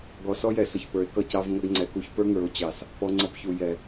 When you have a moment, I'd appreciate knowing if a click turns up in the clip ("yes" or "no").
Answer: yes